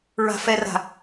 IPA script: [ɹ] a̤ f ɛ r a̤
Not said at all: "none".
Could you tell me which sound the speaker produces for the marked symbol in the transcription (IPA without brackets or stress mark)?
ɹ